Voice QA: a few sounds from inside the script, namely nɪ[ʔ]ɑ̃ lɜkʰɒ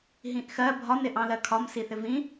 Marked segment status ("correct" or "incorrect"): correct